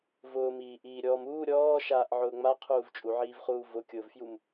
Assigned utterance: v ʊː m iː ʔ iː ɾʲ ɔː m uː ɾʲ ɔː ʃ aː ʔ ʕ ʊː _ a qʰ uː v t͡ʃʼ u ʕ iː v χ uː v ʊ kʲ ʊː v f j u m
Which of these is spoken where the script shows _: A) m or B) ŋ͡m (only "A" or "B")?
B